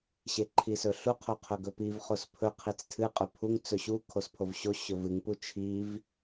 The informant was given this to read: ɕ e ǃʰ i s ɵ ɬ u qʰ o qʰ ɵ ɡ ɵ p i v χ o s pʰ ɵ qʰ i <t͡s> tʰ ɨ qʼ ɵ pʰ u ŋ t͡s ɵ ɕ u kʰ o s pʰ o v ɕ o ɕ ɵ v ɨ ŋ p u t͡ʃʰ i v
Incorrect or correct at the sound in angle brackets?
correct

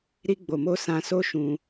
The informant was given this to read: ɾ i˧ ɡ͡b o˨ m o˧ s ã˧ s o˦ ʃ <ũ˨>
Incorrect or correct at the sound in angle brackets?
incorrect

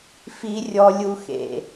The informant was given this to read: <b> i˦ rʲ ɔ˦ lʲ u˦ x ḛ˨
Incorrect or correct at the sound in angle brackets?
incorrect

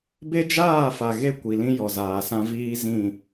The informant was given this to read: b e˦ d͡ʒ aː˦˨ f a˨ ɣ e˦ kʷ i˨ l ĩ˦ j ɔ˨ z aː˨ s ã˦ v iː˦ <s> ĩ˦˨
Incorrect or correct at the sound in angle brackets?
incorrect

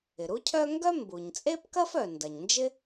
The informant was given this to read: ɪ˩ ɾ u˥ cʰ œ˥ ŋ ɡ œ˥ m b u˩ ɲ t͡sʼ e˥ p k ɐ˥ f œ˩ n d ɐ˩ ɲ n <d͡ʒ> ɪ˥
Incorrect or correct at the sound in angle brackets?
correct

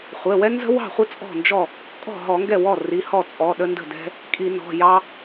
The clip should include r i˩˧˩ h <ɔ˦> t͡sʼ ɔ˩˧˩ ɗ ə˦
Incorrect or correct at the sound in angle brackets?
incorrect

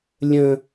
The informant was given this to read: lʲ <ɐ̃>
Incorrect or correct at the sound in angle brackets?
incorrect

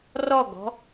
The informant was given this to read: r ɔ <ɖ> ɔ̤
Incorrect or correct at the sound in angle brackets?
incorrect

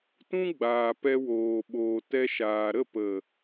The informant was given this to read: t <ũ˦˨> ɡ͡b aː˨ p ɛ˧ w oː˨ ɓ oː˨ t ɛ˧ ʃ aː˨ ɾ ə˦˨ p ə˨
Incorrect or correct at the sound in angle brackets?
incorrect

